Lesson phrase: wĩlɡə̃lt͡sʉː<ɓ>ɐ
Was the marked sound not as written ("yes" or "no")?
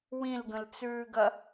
yes